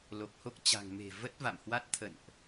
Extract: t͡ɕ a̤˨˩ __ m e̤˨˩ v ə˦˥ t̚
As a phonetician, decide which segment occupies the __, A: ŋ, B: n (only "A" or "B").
A